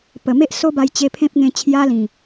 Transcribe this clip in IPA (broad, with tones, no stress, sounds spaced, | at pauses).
p ə˨˩ m e˦ ʔ s o˦ b a˧ j t͡ɕ e˧ pʰ ẽ˦ p̚ ŋ ẽ˧ t͡ɕʰ j a˦ l ĩ˨˩